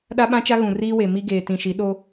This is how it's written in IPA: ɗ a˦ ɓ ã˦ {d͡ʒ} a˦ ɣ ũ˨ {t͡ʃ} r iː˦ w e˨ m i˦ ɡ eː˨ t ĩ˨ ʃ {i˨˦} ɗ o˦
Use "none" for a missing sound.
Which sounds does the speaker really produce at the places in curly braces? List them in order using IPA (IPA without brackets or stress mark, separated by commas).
t͡ʃ, none, i˨˦